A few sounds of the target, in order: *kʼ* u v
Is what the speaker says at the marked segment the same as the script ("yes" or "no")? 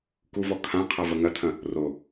no